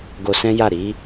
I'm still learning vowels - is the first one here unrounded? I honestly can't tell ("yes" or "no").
no